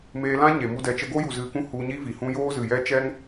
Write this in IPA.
meː˧lã˦ ɲe˨mu˧dɛ˨ t͡ʃə˧ɡo˦ju˨ zɨ˨kũ˧ hu˧ ɲi˦vi˨hũ˦ joː˦zɨ˨ jɛ˧ t͡ʃɛ˦ŋ

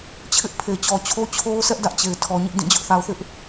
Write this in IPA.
t͡ɕʰɪ˦ʔpʰe˨t͡ɕɔ˨t͡ɕʰo˦ t͡ɕʰo˦ʊ̯sɛ˦ʔ dä˦ʔt͡ɕe˨ɪ̯ tʰɔ˨ɲɪ˦ʔdĩ˦˨ d͡ʑʊ˦ʔ θa˨ʊ̯θɪ˦ʔ

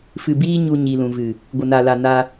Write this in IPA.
fɨ˨biː˦ ɲu˧ɲi˨lũ˨vɨ˨ | ɡʷə˨na˨la˨ na˧

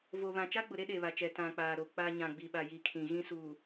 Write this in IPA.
vo˨βã˨ t͡ʃa˦ɡ͡bʊ˨ɾe˦ ɗe˨βa˨t͡ʃɛ˨ tã˨k͡paː˨ɾo˨ k͡pa˦ ɲã˨ɡ͡bi˨ɓa˨ji˨ kʰĩ˨ɣĩ˦ suː˨

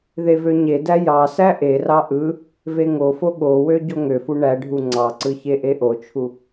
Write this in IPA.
ðevøɲedæ jɑsæ ʔerɑ ʔɯ | veŋofo ɠowø ɟoŋøfu ɳæɖʱu ŋ͡ǀɑǀɯ çeʔeʔot͡ʃʰu

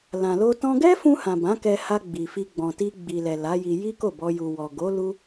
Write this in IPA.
lã˨lo˧tɔ̃˦ ɡɛ˦fũ˧hã˨ bã˨˦kɛ˧ha˧ ɡ͡bi˨fi˧ ɡ͡bɔ̃˨ti˧ ɡ͡bi˨lɛ˨ la˨˦ji˧ ji˦ko˦˨bɔ˧ ju˨ wɔ˨ɡo˨˦ lu˦

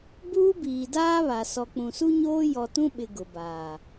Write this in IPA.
buː˦biː˨daː˦βa˨ sɔ˨k͡pũ˨su˦ɲoː˦ jɔ˨tũ˦ɓɪ˨ ɡʊ˨baː˨

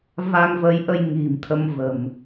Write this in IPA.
va˧ŋvə˨˦jʔə˧j ŋi̤˨˩mt̪ʰə˧mvə̤˨˩m

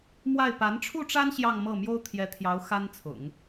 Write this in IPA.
mwa˥˩ɪ̯ pa˧˥nʈ͡ʂʰu˥˩ʈ͡ʂa˥n ɕjɑ˥˧ŋmɤ˥˩ mjo˥ʊ̯t̪ʰjɛ˧˥t̪ʰjɑ˧˥ʊ̯ xa˥nt͡sʰʊ̰˨˩˦ŋ

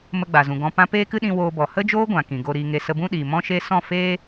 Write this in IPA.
mə˧ɡ͡ba˨zũ˨ ɡɔ̃˨pã˧ peː˦kɨ˦ɗĩ˧ woː˧bɔ˨ hə˦d͡ʒoː˦ɡʷã˨ kĩ˨ɡo˧ɾiː˧ŋe˧ sə˧bũ˦ɗiː˨ mɔ̃˦ʃe˦ sɔ̃˦˨ feː˧

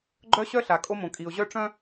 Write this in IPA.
ɡ͡ǃœ˦ɕœ˦ ɬa˨kʼo˦mõ˨ kʼi˨ʊ̯ʑœ˦ ʈ͡ʂœ̃˦

